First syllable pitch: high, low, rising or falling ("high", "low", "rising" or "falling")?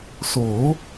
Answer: rising